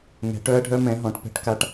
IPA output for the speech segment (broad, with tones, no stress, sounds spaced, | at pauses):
ŋ ɛ̤˨˥ ʈ œ˦˥ ɐ̯ ɖʱ œ˦˥ m ɛ̃˨˥ ɦ ɔ̃˨˥ ʈ p ɛ̤˦˥ ʈ k a˦˥ ʈ